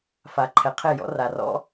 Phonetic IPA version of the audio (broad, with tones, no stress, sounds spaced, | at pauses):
f a˨ ǃʰ ɛ˨ qʰ e˦˨ j ɔ̰˦ r a˨ r ɔ̰˦